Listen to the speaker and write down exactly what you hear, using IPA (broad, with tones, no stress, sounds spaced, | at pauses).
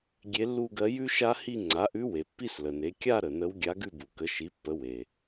ɡʲ e˧˥ lː u˥˧ ɡ ɜ˧˥ j ʉ˥ ʃ a˥ h i˥˧ ŋ͡ǀ a˩˥ ʔ ʉ˧˥ w e˩ pː i˥˧ s l ə˩ n e˩˥ kʲ a˥˧ ɾ ə˩ n ə˧˥ w ɡʲ a˧˥ ɡ ʉ˥˧ b u˩ k ə˩˥ ʃ i˩˥ pː ə˩˥ w e˩